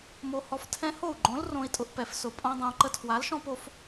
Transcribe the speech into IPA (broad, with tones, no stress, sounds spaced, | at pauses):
m o˧ h ɔ˧ f tʰ ɛ̃˦ h o˦˨ u̯ ɡ͡ǃ õ˨˦ l r õ˦ i̯ tʼ ʊ˧ ʔ p ɛ˧ f s ʊ˨ pʼ õ˦ dˤ õ˧ u̯ ǃ ə˧ tʰ w a˨˦ l ʃ ɔ̃˦ p o˧ f